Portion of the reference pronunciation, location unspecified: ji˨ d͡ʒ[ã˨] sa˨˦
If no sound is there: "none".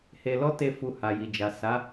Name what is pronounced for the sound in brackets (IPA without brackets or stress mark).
a˨